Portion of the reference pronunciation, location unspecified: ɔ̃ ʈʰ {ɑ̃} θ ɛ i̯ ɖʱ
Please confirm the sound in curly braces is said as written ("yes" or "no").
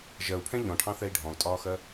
yes